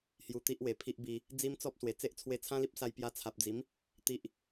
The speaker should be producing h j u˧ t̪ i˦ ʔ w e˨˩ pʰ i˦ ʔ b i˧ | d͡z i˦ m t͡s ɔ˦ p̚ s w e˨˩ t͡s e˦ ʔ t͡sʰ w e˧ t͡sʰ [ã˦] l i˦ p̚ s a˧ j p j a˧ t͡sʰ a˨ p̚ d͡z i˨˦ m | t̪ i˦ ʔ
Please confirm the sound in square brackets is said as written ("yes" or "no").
yes